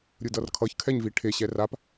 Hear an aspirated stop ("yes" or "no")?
yes